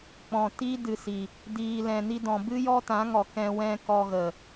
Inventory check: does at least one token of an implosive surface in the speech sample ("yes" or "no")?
no